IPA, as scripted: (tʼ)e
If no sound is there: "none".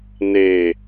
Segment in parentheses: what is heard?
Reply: n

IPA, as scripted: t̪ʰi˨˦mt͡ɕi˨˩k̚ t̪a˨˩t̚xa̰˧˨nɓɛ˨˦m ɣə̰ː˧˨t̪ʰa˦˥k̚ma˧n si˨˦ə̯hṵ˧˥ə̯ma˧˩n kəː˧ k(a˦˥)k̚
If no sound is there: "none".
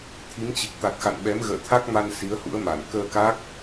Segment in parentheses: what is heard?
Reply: a˦˥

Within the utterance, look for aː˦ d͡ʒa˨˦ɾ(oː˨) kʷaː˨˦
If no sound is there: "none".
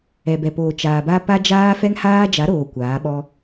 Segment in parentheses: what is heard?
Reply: oː˨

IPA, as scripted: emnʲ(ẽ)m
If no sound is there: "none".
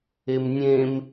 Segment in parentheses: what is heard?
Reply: ẽ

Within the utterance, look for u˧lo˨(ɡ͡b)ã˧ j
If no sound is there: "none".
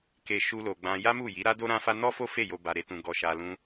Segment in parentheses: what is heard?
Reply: ɡ͡b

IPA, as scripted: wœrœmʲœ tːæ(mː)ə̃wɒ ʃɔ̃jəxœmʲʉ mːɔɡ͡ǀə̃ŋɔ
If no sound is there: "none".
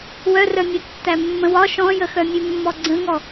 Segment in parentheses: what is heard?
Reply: mː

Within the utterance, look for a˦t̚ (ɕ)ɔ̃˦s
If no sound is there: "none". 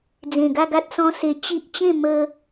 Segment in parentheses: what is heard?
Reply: s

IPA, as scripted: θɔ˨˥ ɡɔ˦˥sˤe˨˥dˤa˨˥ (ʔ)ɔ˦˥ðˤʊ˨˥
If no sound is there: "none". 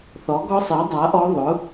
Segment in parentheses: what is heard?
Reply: ʔ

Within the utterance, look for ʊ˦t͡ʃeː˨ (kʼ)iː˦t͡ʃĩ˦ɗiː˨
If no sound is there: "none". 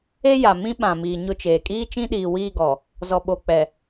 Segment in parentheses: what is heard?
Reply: kʼ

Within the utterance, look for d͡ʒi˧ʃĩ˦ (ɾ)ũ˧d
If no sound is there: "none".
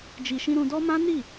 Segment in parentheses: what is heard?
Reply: ɾ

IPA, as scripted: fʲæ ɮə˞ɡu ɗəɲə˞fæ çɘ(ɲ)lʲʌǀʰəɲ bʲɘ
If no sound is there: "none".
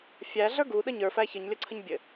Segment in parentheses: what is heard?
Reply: ɲ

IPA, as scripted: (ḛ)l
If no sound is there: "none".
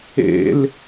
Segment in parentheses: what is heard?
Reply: ḛ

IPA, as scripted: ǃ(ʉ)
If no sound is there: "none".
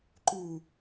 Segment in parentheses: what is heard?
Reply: ʉ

